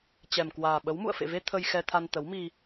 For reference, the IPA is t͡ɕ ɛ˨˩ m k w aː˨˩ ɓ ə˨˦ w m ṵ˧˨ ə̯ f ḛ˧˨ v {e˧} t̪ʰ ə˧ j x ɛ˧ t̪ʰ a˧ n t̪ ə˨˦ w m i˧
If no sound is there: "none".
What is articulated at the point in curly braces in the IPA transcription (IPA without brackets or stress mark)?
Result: e˧